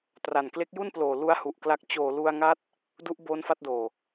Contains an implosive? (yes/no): no